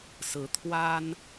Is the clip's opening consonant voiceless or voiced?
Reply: voiceless